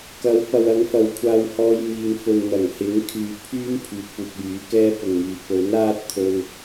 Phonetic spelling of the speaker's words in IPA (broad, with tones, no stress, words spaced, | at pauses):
kɐ˨˥w pɐ˨wɐ˨˧ŋ fɐ˨wkʷʰaː˧whɔː˧j miː˨ŋfɵ˨n n̪ɐ˨˩ŋhɪ˨˥ŋ kʰyː˨pʰyː˥m pʰyː˨t̚puː˨k̚jyː˨˥kɛː˥ pʊ˨ŋmyː˨ pɵ˨˥naː˥t̚t̪ʰɵ˧n